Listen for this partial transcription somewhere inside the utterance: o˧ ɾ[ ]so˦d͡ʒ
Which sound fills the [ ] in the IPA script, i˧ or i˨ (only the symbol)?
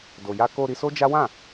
i˧